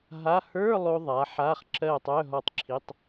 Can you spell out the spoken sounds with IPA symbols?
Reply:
ɦ a˧˥˧ h ə˞˧˥˧ lˠ o˧ ðˤ a˨˥ ħ a˧˥˧ χ ǁ ɜ˥˨ tˤ œ˧˥˧ ɦ ɔ˥˨ tˤ ǁʰ i˧˥˧ tˤ

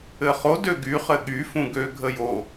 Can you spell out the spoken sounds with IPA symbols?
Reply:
ɘ χ o d ø ɡ y χ ɘ ɠ y f ũ ɡ ø ɡʱ ə j o

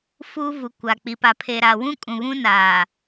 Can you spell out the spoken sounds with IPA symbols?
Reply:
f uː˦ v u˨ kʷ a˨ k͡p i˨ p a˨ pʰ e˨ ɾ a˨ w ũ˦ kʼ ũ˨ β ũ˦ n aː˨

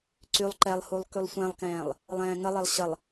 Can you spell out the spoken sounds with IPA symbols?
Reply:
ǀ y lˠ ǃ ɛ lˠ h u lˠ k y lˠ sʷ ɛ̃ lˠ k ɛ̃ː lˠ | lˠ ɛ̃ː ŋ ə lˠ e lˠ ɕ ə lˠ

